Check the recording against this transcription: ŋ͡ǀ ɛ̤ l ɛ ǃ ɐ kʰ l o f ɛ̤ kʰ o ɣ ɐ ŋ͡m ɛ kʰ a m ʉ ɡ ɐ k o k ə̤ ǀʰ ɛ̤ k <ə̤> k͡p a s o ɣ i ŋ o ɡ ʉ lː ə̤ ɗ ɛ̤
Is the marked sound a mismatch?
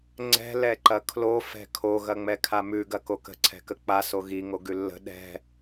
yes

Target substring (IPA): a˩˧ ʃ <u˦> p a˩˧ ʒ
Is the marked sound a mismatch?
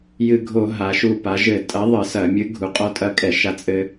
yes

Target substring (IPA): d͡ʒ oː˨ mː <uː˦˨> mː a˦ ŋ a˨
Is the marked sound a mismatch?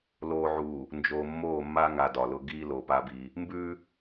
yes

